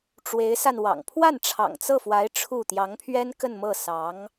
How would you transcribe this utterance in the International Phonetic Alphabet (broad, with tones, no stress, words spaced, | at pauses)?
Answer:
ʈ͡ʂwe˧˥ɪ̯sa˧nwɑ̰˨˩ŋ pʰwa˥˩n ʈ͡ʂʰɑ̰˨˩ŋt͡sɤ˥˩fwa˧˥ɪ̯ ʈ͡ʂʰu˥˩ t̪jɑ˧˥ŋpʰɥɛ˥nkə˥˧nmɤ˥˩ sɑ˧˥ŋ